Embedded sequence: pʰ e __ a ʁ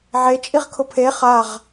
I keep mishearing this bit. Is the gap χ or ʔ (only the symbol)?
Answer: χ